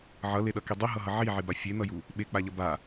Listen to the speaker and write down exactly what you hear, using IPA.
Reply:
ʕʌleɗʌki dˤiɦʌɦʌ ʕiʕeba fʲenʌju | ɓek͡paʎʌ ba

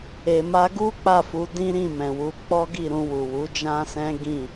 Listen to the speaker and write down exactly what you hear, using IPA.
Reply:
e˨ma˧ɡu˦ k͡pa˦˨fu˨˦ dĩ˦ɾĩ˦˨mɛ̃˨wu˧ k͡pɔ˦ɡi˦˨ɾũ˧ wu˨wu˨˦d͡ʒã˦sɛ̃˦ ɡĩ˦˨

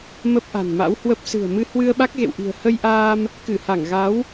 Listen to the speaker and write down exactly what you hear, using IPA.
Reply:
mə˦˥p̚ʔa̤˨˩nma̰˧˥whwə˦˥p̚ sɨ̤˨˩ə̯mɨ˧ hwɨ˧ə̯ɓa˦˥k̚ɣḛ˧˨wʔi̤˨˩ə̯ hə˧jʔaː˧m | kɨ˧˩ha˧˩ŋ ɣa˨˦w

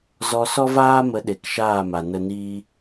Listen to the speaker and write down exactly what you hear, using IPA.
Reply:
zɔ˧sɔ˦vaː˦mə˨˦ ɗe˨kʃaː˦˨ma˨ nə˧niː˦

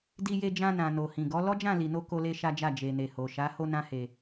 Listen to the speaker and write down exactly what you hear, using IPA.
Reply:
di˧je˧d͡ʒã˧nã˨ no˨hĩ˨ɡɔ˨˦ lɔ˦d͡ʒã˦˨li˨no˧ ko˦le˦ʃa˦d͡ʒa˦˨ d͡ʒe˨ne˨ho˨ ʃa˨˦ ho˦nã˦he˧

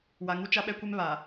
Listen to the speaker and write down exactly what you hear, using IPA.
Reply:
wa˨ŋu˦ t͡ʃa˦ɓɛ˦kʷe˦m βa˨

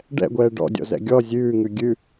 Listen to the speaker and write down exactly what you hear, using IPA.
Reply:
ɖɛ̰ɡʷɛː ɖɔ̰dʲɔ̰zɛ̰ ɡʲɔ zʲʉːŋʉ ɡʲʉ

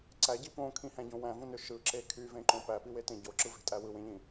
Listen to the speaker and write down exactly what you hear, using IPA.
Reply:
ǀæɟi põkʰĩhæ̃ɟõ wæ̃vũnø ʃɯǁe kʰyvẽǃõ pæpiwetẽ ɟoǁɯve̤tʼæ wɯwẽʎĩ

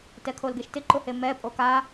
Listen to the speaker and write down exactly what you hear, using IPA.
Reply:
tɛkʰolɡeʃtɪ ǃʊhemɛ pʼoka

